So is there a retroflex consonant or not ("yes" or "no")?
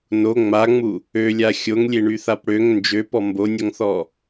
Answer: yes